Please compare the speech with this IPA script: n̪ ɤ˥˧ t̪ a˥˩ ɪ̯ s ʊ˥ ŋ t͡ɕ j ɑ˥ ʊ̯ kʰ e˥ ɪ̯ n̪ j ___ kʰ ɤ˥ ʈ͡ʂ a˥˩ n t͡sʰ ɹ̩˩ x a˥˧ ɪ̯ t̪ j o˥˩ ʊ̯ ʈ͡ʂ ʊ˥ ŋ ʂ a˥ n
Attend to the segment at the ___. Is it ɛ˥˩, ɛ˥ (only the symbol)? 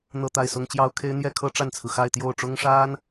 ɛ˥˩